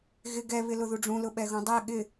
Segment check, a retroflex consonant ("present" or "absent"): present